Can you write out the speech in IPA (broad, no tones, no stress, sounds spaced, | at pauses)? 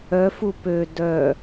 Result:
œ f u p ø d œ